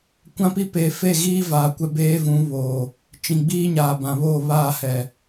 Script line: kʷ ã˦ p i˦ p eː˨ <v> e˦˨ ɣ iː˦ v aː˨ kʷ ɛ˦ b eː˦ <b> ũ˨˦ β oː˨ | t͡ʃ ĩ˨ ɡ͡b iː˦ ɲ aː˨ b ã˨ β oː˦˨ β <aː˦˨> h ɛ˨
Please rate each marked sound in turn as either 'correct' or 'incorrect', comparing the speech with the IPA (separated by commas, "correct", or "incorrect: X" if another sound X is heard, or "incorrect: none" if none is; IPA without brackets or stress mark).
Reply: incorrect: f, incorrect: v, correct